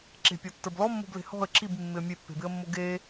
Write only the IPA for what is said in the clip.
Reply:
ǁe̤pʲɔtːə˞b lɔmːo̤ble̤ hɔ̤ə̯ ǁibmːɪə̯ mʲepːe̤bɪə̯mːo ɡe

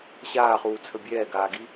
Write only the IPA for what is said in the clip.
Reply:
ɕaːχuːt͡sʰə bʲɛːɡaːɡi

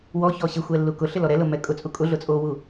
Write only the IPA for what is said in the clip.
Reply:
wɔ çɔɕɪxʷɛ lːukʊɬɪ lɔɾɛlʊ mːɛkʼʊt͡sʼu kʼʊɮʊ t͡sʼowu

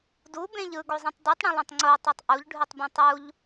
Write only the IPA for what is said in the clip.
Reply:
dubẽʎ ɯɡozˤẽtˤ dutˤɽũlˠũtˤ ŋ͡ǀotˤʉtˤ ʔuʎɖʱʉtˤbẽ tˤuʎ

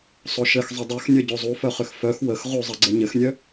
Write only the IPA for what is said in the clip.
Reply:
sˤoʃɘx zˤədˤœxnʲœ ɟozˤufœχʏx fœx wəx ʁuzˤɘ ɡ͡ǀəɲɘxnʲœ

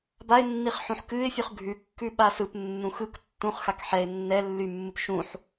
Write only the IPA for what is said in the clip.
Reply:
baɪ̯nːiχ ħũħkɨɪ̯fʲʉχ ɡʱʉ kːʉɓasɯpnːũ xɯk tːũχxak ħɛɪ̯ nːɛ lːymːɯp ʃũħ

